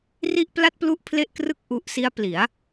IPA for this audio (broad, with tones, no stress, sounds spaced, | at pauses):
r i˥˩ ʔ p l a˥˩ t̚ p l u˥˩ ʔ pʰ l e˥˩ ʔ k r ɯ˥˩ k̚ ʔ u˦˥ ʔ s i˦˥ a̯ p l i˩˦ a̯